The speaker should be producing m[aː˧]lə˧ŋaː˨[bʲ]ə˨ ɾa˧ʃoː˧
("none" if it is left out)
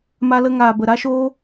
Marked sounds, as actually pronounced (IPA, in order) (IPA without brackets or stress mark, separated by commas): a˧, b